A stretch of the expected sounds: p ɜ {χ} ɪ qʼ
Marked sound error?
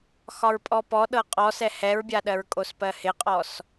yes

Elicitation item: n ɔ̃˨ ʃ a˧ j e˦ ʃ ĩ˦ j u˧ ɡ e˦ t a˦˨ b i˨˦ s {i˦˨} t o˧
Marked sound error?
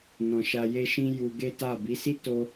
yes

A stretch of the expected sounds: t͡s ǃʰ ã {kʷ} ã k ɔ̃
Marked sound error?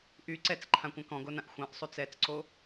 no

